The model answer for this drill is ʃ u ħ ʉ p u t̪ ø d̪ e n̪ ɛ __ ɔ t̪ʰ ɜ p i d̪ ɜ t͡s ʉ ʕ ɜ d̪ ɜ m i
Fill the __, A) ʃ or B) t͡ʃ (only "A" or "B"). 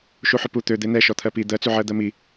A